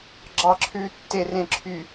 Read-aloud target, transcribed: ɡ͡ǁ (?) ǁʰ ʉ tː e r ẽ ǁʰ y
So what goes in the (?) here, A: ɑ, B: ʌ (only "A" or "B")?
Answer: A